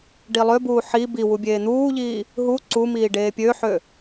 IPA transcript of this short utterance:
ɖilˠøbuː ħi biwu bʲeːn̪uːʎiː | ɦu ǀumiː ɖeːpʲøħø

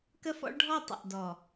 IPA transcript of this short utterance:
kə˦fɔ̰˦ɭɖʱɔ˦˨ tˤə̰˨ʔdɔ˨

